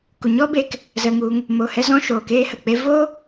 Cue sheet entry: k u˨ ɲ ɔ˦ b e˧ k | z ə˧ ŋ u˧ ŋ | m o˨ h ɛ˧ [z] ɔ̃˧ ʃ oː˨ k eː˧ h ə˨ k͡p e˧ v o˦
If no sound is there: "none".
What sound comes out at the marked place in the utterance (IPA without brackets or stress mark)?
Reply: z